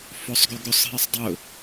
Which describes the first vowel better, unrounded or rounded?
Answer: rounded